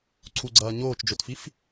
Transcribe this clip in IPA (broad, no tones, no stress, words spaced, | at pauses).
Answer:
ǀʰuɡ͡ǀɐː ɲoːt͡ʃd͡ʒotfif